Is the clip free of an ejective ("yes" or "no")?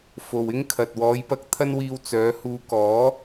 yes